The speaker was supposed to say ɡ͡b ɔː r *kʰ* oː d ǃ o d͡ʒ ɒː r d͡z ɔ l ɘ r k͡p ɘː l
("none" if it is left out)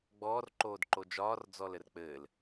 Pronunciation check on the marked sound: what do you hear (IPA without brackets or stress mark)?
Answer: ǃ